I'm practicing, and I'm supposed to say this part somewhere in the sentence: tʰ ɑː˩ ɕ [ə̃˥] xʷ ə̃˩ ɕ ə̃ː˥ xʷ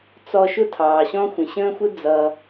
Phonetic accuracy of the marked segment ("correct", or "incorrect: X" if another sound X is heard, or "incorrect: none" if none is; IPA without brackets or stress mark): incorrect: ɔ̃˥